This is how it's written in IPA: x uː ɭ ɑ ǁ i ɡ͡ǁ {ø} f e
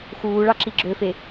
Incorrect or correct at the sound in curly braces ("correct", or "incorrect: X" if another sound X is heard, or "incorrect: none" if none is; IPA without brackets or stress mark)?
correct